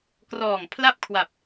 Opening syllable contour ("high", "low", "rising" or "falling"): low